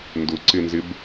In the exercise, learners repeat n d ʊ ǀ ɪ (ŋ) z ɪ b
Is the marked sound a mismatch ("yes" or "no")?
yes